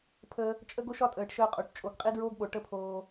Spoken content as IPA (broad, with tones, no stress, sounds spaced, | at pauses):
pʰ ə˧ | t͡ʃʼ ə˦ ɡ o˦ ʃ ɒ˦ tʼ əː˨ ʈ ʃ əː˧ qʼ o˨ ʈ t͡ʃʼ o˨ ɡ qʼ i˦ d ɹ oː˦ ɡ ɓ o˨ ʈ ə˦ pʰ oː˧